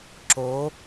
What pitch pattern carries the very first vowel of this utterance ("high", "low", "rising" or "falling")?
rising